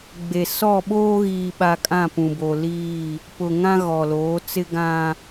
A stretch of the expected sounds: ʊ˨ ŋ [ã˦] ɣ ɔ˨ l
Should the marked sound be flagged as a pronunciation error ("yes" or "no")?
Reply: no